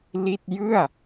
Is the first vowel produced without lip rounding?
yes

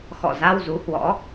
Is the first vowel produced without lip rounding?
no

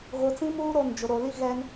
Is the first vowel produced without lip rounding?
no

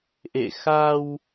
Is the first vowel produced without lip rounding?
yes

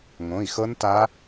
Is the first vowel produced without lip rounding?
no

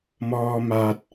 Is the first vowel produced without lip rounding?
no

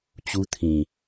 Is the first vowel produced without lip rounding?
no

